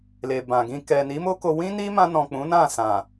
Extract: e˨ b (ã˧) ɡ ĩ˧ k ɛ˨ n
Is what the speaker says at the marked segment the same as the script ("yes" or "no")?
no